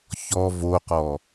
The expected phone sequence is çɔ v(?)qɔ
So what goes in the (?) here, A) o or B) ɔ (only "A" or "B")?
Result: A